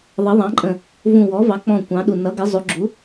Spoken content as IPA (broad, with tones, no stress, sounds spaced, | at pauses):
ðˤ ʌ˩˥ ðˤ ɑ̃˩˥ ǃʼ ə̃˧˩ | v ũ˧˩ w ɔ˩˥ v ɑ˩˥ k͡p ɔ̃˧˩ kʷ ɑ̃˩˥ ɗ u˧˩ n ʌ˩˥ ɡ ɪ˩˥ zˤ u˩˥ ɡ͡ǁ u˩˥